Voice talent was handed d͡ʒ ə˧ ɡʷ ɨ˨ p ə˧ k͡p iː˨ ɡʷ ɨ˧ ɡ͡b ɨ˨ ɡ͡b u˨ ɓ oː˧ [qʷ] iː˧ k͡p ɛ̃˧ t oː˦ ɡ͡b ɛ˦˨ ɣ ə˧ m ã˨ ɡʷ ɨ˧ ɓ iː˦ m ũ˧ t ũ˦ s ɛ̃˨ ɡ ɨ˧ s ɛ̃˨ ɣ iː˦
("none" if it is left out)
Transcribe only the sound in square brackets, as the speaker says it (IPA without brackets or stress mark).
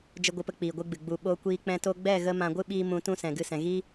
kʷ